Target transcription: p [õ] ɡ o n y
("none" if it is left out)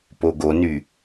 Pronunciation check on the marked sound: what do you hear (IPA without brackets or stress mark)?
o